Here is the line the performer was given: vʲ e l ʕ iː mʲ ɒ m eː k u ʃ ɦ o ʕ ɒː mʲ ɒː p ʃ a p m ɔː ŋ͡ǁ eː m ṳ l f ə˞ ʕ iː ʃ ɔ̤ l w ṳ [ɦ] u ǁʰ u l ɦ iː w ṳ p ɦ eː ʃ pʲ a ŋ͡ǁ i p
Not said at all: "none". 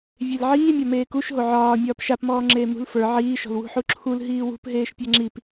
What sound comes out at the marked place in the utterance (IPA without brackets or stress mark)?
ħ